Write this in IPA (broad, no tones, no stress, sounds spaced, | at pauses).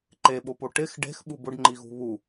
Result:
ǃ e ɓ o p o ʈ ɪ x ɖ e̤ x ɓ u b ʊ ɖ ŋ͡ǃ i ɣ ṳ β u